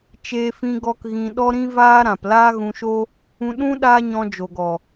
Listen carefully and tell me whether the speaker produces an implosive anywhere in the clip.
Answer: yes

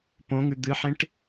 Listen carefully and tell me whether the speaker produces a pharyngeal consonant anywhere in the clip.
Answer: yes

